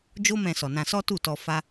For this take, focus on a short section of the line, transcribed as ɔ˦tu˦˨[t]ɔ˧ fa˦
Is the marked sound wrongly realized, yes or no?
no